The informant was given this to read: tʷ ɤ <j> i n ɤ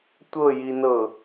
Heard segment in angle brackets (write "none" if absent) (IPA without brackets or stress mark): j